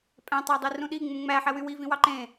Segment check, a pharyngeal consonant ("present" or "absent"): present